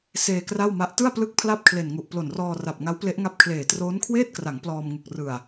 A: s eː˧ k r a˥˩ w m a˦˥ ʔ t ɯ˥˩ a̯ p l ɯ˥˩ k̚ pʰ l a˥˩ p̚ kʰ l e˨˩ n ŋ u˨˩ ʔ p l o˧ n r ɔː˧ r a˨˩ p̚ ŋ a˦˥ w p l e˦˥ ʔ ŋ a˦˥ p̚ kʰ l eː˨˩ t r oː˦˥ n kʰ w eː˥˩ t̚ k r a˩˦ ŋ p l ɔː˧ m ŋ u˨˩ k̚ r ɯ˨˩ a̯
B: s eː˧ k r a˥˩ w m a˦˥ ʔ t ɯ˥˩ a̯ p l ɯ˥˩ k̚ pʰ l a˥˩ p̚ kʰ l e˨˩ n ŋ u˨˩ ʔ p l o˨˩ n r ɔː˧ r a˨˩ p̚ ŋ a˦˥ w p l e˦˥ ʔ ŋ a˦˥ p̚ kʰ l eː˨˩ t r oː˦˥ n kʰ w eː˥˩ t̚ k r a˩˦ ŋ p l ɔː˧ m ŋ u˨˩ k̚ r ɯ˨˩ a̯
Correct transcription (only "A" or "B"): B